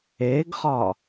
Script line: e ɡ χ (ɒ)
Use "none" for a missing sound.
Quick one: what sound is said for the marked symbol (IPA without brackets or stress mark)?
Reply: ɒ